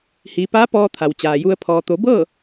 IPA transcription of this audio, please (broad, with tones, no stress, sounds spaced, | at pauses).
h iː˩˧ p aː˧˥ p ɔː˧ t̪ʰ a˩ w t͡ɕ aː˩ j u˧ ə̯ pʰ ɔː˩ t̪ o˩˧ b ɤː˥˨